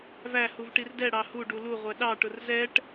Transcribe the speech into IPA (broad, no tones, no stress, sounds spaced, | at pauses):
v æ h u v ʈ i r d ɛ ɽ ɑ h u ɖ u l u ʁʷ ɛ ɗ ɑ ʈ ʊ r z ɛ ʈ